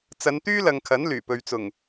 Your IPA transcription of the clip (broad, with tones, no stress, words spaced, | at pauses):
t͡sɐ˨˧nt̪yː˥lɐ˨ŋ kʰɐ˨˥n lyː˨˩pɵ˨ɥt͡sʊ˨˩ŋ